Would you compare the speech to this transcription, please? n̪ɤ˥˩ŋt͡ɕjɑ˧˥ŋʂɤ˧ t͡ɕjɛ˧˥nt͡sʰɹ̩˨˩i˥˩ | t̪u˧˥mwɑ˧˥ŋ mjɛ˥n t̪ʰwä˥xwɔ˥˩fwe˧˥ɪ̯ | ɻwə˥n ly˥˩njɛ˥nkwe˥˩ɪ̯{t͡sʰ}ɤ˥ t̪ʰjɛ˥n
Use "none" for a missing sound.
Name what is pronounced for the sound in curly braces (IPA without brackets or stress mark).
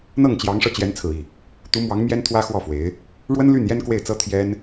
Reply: t͡s